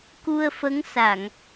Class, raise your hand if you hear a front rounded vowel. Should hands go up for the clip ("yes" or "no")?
no